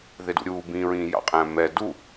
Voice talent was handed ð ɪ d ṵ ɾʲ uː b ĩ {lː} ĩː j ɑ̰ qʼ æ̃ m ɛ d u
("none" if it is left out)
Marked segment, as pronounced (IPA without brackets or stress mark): ɹ